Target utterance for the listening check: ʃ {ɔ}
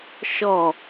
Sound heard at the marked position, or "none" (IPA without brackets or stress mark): ɔ